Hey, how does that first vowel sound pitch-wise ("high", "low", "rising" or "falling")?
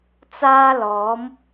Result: high